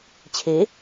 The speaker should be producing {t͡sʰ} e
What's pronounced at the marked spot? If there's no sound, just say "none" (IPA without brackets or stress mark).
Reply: t͡ɕʰ